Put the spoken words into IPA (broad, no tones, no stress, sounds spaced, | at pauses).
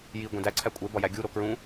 j i ɡʷ ẽ d æ ǀʰ æ kʷʼ e b ɒ j æ ɡʲ u ɾ o k ɹ ũ